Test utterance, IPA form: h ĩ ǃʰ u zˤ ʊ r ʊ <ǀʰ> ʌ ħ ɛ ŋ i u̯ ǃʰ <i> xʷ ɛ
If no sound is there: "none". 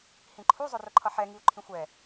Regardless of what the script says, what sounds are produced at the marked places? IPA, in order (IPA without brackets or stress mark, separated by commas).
ǃʰ, ĩ